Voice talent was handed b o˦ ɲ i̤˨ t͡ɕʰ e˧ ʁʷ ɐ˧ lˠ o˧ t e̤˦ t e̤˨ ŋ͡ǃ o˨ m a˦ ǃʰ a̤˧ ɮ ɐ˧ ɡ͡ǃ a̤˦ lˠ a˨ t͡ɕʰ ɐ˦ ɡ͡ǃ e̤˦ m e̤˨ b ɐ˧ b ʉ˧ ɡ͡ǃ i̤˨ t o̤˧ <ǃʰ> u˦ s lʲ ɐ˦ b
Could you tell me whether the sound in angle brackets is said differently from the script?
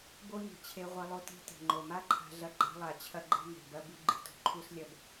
no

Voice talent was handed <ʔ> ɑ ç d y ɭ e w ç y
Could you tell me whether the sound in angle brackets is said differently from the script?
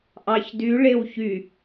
no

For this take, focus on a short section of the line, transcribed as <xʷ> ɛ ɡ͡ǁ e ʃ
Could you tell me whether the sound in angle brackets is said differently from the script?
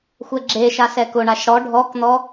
no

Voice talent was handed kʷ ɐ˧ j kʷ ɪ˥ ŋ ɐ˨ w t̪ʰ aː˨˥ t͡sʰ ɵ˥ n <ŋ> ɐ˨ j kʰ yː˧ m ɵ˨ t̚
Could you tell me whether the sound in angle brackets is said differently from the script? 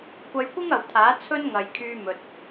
no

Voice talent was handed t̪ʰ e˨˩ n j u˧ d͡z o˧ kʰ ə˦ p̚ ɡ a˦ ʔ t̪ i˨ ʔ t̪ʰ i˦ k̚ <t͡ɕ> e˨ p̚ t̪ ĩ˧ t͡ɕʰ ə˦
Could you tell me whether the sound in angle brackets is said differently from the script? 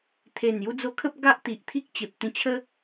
no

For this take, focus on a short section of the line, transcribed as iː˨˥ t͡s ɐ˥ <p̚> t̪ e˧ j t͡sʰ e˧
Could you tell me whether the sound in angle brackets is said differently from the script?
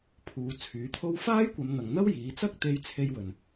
yes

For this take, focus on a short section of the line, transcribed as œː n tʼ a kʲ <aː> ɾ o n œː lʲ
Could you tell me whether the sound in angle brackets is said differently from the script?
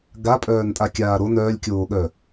no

